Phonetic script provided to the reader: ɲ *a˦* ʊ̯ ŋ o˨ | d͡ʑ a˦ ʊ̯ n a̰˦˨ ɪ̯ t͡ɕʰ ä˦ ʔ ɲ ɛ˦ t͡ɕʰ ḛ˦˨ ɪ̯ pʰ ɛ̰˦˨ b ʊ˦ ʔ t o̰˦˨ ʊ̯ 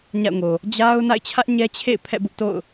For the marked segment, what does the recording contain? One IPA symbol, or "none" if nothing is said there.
a̰˦˨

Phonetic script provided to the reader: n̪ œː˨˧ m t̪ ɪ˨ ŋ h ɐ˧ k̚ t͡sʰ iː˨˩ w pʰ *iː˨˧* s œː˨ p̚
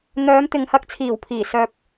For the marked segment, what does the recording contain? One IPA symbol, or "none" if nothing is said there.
iː˨˩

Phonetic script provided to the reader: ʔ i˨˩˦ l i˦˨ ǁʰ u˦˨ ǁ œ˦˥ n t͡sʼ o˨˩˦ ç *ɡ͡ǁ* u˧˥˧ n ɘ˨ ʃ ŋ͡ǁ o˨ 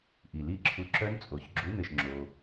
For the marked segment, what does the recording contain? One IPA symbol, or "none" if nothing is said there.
ɡ͡ǁ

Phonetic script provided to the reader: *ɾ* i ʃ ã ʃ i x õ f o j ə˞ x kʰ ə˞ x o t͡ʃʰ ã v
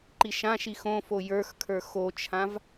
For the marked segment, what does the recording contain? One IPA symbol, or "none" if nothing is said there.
ǃ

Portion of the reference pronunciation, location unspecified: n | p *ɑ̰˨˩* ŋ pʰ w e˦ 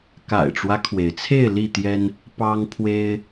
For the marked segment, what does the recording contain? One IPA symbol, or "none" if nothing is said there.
ɑ˦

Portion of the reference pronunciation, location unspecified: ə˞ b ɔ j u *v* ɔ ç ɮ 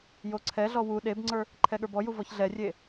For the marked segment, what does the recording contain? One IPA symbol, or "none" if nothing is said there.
v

